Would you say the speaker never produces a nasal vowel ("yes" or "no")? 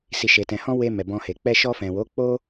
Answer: no